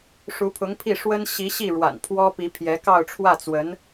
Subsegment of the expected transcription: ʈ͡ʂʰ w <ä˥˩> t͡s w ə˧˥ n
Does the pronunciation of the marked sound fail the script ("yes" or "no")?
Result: no